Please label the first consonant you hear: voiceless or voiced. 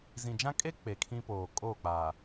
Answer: voiced